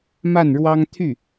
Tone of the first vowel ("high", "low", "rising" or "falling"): falling